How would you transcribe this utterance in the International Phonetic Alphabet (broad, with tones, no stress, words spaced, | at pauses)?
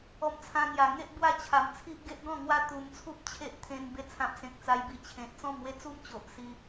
ɔ˧mt͡sʰã˧ŋja˨˩ŋe˦ʔ bwa˥˧t͡ɕʰa˨˩mt͡sʰi˦ʔ ɡe˦ʔɡɔ̃˥˧ŋwa˦t̪u˧n t͡sʰu˦p̚t͡ɕʰe˦ʔ t̪ʰẽ˧nbe˧ t͡sʰã˨p̚sẽ˨k̚ t͡sa˧jbi˧ t͡ɕʰẽ˨t̚t͡sɔ̃˥˧mwe˥˧ t͡su˦mt͡ɕo˨ʔsi˧